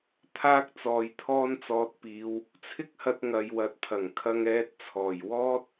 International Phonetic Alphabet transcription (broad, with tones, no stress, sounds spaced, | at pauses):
t̪ʰ aː˧ k̚ t͡s ɔː˨ j t̪ʰ ɔː˥ n t͡s ɔː˧ t̚ p iː˨˧ w | t͡sʰ ɪ˥ k̚ h ɐ˧ t̚ ŋ ɐ˨ j w ɐ˨ t̚ pʰ ɐ˨˩ ŋ kʰ ɐ˧ ŋ ɛː˧ t̚ t͡sʰ ɔː˨˩ j w ɔː˥ t̚